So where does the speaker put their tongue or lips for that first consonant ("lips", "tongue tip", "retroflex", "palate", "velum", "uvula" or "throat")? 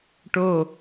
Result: retroflex